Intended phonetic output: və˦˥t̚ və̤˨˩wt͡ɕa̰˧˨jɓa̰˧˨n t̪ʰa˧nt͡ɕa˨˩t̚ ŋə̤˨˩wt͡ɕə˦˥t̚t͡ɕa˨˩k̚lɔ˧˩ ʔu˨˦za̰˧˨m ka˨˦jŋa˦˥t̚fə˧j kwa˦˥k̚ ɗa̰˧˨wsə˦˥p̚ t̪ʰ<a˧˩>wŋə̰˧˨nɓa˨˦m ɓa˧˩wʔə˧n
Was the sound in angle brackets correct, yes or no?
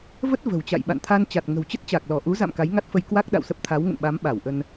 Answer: no